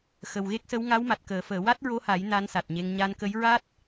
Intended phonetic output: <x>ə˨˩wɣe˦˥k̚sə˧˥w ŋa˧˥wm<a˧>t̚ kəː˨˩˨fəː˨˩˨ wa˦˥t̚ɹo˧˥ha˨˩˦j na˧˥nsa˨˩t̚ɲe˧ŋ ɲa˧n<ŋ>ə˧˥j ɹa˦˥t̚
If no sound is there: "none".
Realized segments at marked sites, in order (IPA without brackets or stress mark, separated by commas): x, a˨˩, k